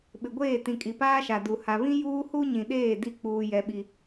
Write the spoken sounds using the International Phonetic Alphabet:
ɓ ɪ˨ ɡʷ eː˦˨ t ĩ˨ kʼ i˨ p aː˦ ʃ a˨ d u˨ h a˨ β ĩ˦ j uː˦ h u˦ ɲ ĩ˨ ɗ eː˦˨ d i˦˨ k͡p uː˦ j ɛ˦ ɓ i˦

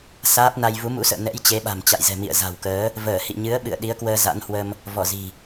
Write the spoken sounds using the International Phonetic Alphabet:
s aː˦˥ p̚ n a˧ j v u˨˦ m ṵ˧˥ s ə̰ː˧˨ n ɛ̰˧˥ j t͡ɕ e˨˦ ɓ a̤˨˩ m t͡ɕ a̰˧˨ j z ɛ̤˨˩ m ḭ˧˨ ə̯ z a̤˨˩ w k əː˨˦ | v əː˧˩ h ḭ˧˨ ɲ ɨ˨˦ ə̯ ɓ ɨ̰˧˨ ə̯ ɗ i˨˦ ə̯ k w əː˧ z a̰˧˥ n h w ə˧ m | v ɔ˧˩ z i̤˨˩

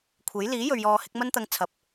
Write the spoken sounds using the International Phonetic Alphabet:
kʷʰ e˨˥ j l iː˨˥ j ɵ˨ ɥ j ɔː˧ h ɪ˨˥ k̚ m ɐ˥ n t̪ ɐ˧ ŋ t͡sʰ ɐ˨˥ p̚

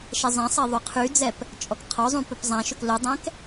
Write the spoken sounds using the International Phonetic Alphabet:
ʃ ɛ zˤ ɛ̃ sˤ ɛ ðˤ ʏ qʰ y d͡z ɛ p | t͡ʃʼ ɔ k qʰ ɔ zˤ ũ p ɵ p zˤ ã ʃ ɵ k l ɵ dˤ ɛ̃ k

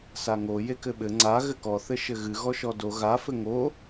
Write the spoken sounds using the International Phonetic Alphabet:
s a ŋ o j e k ɘ ɓ ɘ ŋ͡ǀ a ɣ ɘ k ɔ θ ɘ ʃ ɘ ɣ ɨ ɣ ɔ ʃ ɔ d o ɣ a f ɘ ŋ o

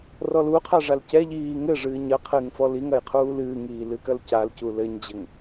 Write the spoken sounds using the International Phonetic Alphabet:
r ɔ l u qʰ a ʐ a l c ɛ ʎ iː ŋ ɘ ʐ ɨː ɲ ɐ qʰ ɨ ŋ f ɔ l i ŋ ɐ j qʰ uː l ɨː ŋ iː l ɨ k ɐ l c a l c u l ɘ ɲ d͡ʑ ɘ ŋ

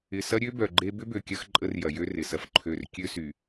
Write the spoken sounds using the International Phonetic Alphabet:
ɪ˨ s ɐ˦ ɾʲ ø˦ b œ˨ ɡ͡ǃ e˦ b ʏ˦ b ø˨ kʲ ɐ˦ x ǃʼ ə˦ r j ɐ˨ j ø˦ r ɪ˨ s ɐ˦ f ǃʰ ø˦˨ r kʲ ø˦ s y˨

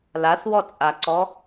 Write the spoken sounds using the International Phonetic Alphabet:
l a θ w ɔ t͡sʼ a ǀ ɔ

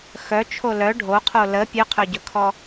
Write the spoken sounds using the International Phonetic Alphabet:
x œ t͡ʃʰ o l œ ɖʱ o qʰ o l ə pʲ ɵ qʰ œ ɟ ɵ kʰ ɔ

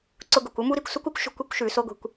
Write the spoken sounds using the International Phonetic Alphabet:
ǀ ʊ˧ ɡ ʊ˨ kʷ ʊ˦ m u˦ ɾ i˨ kʷ s u˦ kʷ u˦ kʷ ʃ o̤˧ kʷ i˧ kʷ ʃ ʉ˨ s o˧ ɡʷ i̤˨ kʷ

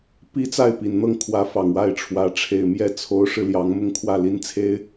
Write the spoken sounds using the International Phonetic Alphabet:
p i˥ t͡s a˥˩ ɪ̯ p i˨˩ n n̪ ɤ˥˩ ŋ kʰ w ä˧˥ f ɑ˨˩ ŋ w a˥˩ ɪ̯ ʈ͡ʂʰ w ä˧˥ ʈ͡ʂʰ e˨˩ ɪ̯ m j ɛ˥˩ t͡sʰ o˧˥ ʊ̯ ʂ ɻ̩˧ l j ɑ˧˥ ŋ m ʊ˥˧ ŋ kʰ w ä˥˩ l i˥ n t͡sʰ e˥ ɪ̯

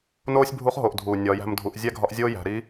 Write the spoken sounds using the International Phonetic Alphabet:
n oː˥ sʲ bʱ u˧˥ χ ɦ o˩ ʔ dʱ uː˩ nʲ ɒː˩˧ j æ̤˧ m dʱ u˩˧ ʔ zʲ æ˥ ɡʱ ɒ˧˥ ʔ zʲ oː˥ j æ̤˩˧ ɾ i˧˥

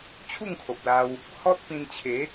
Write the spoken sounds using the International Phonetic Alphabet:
t͡ɕʰ u˥˧ ŋ kʰ o˨ p̚ l a˧ w | h ɔ˦ t̚ p ĩ˧ n t͡ɕʰ e˨˦

